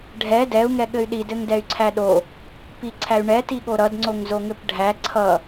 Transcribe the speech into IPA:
ɖʱ ɛ d ɛ u̯ ŋ ɛ ɠ ɘ y̯ ɗ i d ɘ ŋ d ɛ y̯ ǀʰ æ ɗ o | p i ǀʰ æ y̯ ɳ ɛ t i ɠ o ɾ ʌ d ŋ͡ǀ o ŋ z o ŋ ɘ p ɖʱ æ ǀʰ ʌ

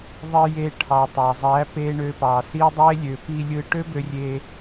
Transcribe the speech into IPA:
ðˤ i˧ j e˧ ʈʰ ɑ˨ tˤ ɑ˨ zˤ æ˨˦ p e˧ ɳ ø˧ p ɑ˨ s i˦ dˤ e˦ lʲ ø˨ p i˧ lʲ ɯ˧ ʈ ø˦ b ø˧ rʲ e˧

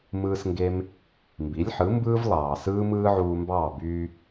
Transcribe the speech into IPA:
m ɯː˧ s ŋ ɡ e˧ m | m b i˩˥ lʲ ħ ɯ˩˥ m b ɯː˥ v lˠ ɑː˩ s ɯː˥ m ɯː˥ ʕ uː˧ m b ɑː˥˩ b yː˧

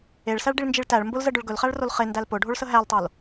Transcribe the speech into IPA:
e ɭ s æ ɭ ɖ i ɭ n d͡ʒ i ɭ t æ ɭ m b ʊ l z ə ɖ ʊ ɭ ɡ ɵ l χ æ ɭ r o l χ e n d æ l p ʊ ɖʱ o ɭ s ə ɦ æ l tˤ o l

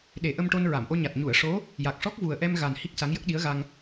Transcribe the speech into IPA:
ɗ e˨˩˦ ʔ ə˧ m ʈ o˧ n ɹ a˨˩˨ m ʔ o˧ ɲ a˨˩ t̚ ɲ u˨˩˨ ə̯ ʂ o˧˥ | j a˨˩ k̚ ʂ ɔ˦˥ k̚ v u˨˩ ə̯ ʔ ɛ˧ m ɣ a˨˩ n h i˦˥ k̚ s a˧˥ ŋ j ə˦˥ k̚ ɗ i˧˥ ə̯ ɣ a˧ ŋ

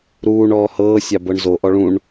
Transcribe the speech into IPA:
ɾ uː ɳ ɔː h ɤː sʲ ɑ b ɤ ɳ z o ʔ ɔ ɭ ũ ɳ

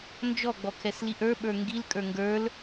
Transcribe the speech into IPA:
n d͡ʒ ɔ ɡ͡b ɔ kʰ ɛ s l i ʔ ə˞ ɓ ə˞ ŋ ɡ i l kʼ ə˞ ŋ ɡ ə˞ l

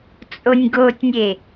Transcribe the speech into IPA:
t͡sʼ o nʲ ɡ o tʲ nʲ e

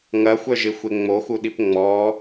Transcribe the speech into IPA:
ŋ ɐ xʷ œ ʒ ɪ xʷ e ŋ͡m o x u ɗ i p ŋ͡m ɔ

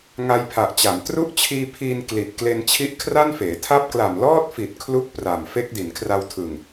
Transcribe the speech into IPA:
ŋ a˧ j pʰ a˨˩ ʔ t͡ɕ a˩˦ m t r u˦˥ ʔ t͡ɕʰ iː˧ pʰ iː˧ n k l i˨˩ t̚ k l e˧ n t͡ɕʰ i˦˥ ʔ kʰ r a˥˩ n f eː˩˦ tʰ a˦˥ p̚ k l a˨˩ m l ɔː˥˩ t̚ f i˨˩ t̚ kʰ l u˥˩ k̚ p r a˨˩ m f e˦˥ k̚ d i˩˦ n kʰ r a˧ w tʰ ɯ˨˩ ŋ

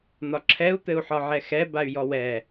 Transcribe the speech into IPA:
n̪ ɒ ǁʰ ɛ u̯ t̪ ɘ u̯ ħ ɒ ʕ ɛ x ɛ b a y̯ j ɔ w ɛ

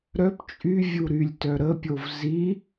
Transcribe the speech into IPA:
ɾ œ p t͡ʃʼ y vʲ u ɾ y lʲ t œ ɾ ə pʲ o v z i

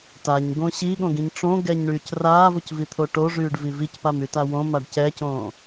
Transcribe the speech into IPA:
t a ɲ ɡ õ ɕ i ɠ õ ɡ ĩ ɲ ʈ͡ʂ õ ɡ ɛ ɲ ɳ yː c r aː v o c v i t̪ʰ o ʈ o ʐ yː ɖ v i v i c p a m y t a w õ m a ɖ c ɛ c õː

